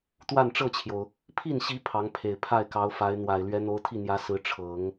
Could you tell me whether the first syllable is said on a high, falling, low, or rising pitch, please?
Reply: falling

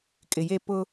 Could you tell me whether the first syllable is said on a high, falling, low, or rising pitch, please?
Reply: low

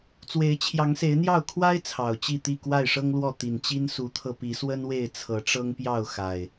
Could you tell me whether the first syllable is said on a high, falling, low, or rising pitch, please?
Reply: rising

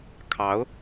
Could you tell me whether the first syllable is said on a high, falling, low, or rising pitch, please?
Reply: rising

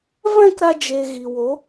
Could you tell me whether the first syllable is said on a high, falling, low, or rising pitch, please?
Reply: falling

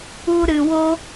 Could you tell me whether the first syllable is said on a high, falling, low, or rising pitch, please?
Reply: high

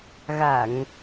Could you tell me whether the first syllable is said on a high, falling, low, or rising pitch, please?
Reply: low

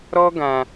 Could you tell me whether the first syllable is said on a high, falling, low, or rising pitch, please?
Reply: high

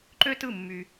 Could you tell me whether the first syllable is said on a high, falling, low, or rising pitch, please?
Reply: high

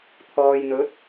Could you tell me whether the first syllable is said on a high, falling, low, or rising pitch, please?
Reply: low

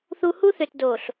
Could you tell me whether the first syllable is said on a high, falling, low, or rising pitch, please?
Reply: high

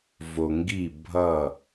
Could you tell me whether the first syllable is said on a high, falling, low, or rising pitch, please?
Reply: low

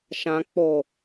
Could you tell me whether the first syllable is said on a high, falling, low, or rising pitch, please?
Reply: high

